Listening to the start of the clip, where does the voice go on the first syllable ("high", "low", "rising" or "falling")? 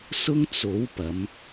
high